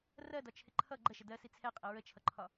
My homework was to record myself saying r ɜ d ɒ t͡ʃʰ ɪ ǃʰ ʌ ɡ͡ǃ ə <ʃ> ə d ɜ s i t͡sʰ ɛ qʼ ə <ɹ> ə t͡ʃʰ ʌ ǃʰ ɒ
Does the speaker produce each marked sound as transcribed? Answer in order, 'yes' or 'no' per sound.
yes, yes

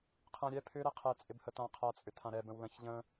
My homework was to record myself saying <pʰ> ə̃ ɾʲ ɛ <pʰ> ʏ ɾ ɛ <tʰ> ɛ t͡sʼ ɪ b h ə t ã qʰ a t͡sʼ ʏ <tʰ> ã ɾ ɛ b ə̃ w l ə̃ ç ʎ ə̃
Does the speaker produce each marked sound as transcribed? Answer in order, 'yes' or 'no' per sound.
no, yes, no, yes

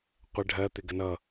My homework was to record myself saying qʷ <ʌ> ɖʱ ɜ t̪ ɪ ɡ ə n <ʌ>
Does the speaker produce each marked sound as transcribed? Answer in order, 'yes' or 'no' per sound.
no, yes

